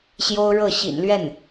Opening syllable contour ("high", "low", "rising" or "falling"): high